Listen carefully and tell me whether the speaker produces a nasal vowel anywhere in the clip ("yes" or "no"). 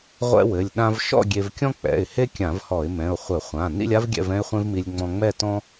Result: yes